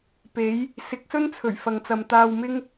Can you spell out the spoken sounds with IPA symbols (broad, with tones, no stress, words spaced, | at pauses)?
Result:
pe˨˥j | sɪ˨˥k̚sɵ˥nt͡sʰɵ˨˩ɥ fɐ˨ŋt͡sɐ˨mt̪aː˧wmɪ˥ŋ